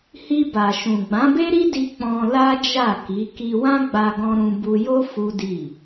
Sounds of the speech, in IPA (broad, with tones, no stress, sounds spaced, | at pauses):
h i˧ b a˨ ʃ ũ˨ ɡ͡b ã˨˦ b e˦ ɾ i˦ d i˧ k͡p ɔ̃˧ l a˦ d͡ʒ a˦˨ k i˨˦ k i˧ w ã˦ ɡ͡b a˧ ɡ ɔ̃˧ ɾ ũ˧ b u˧ j o˦ f u˦ d i˦˨